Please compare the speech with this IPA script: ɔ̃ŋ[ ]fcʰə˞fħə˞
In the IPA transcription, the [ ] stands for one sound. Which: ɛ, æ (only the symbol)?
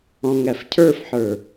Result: æ